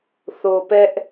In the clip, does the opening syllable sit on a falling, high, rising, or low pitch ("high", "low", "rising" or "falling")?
low